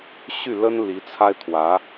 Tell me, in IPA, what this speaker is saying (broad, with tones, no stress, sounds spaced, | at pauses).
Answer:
ɕ y˥˩ l ə˥ n l i˧˥ t͡sʰ a˥ ɪ̯ t̪ʰ w ä˧˥